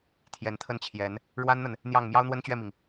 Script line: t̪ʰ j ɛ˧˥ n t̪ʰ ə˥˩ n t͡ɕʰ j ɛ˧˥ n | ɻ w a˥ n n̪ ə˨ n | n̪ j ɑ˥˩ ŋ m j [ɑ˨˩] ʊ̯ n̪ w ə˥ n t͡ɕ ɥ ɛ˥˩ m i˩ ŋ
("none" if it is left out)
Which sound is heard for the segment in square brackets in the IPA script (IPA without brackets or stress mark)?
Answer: ɑ˥